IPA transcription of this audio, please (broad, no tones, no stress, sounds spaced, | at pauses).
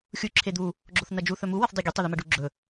xʲ u ǁʰ e d̪ u | ɡ͡ǁ o θ n ɐ d͡ʒ u θ ɵ m u w ɐ θ dˤ e ɡʲ e tˤ o ð ʉ m ɐ ɖ u ɡ͡ǁ ɵ